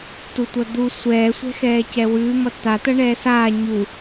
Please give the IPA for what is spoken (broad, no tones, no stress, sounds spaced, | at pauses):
t u tʷ ʌ d̪ u sʷ ɛː sʷ ɛ̤ x ɛː c ɛ w ʉː m ʌ t̪ a t̪ ʌ ɳ ɛː s aː ɲ u